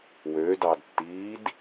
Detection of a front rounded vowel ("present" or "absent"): present